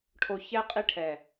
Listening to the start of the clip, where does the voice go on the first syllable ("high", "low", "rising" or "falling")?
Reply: low